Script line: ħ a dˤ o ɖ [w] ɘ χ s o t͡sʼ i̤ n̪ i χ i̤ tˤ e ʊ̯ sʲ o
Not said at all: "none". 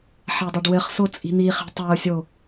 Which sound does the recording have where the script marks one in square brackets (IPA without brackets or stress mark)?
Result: w